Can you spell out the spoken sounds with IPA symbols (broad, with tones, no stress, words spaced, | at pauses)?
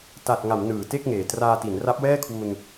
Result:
ta˨˩t̚ŋa˩˦m nɯː˨˩te˥˩k̚ŋeː˨˩ traː˧ti˩˦n ra˦˥p̚wɛː˥˩kʰwu˧n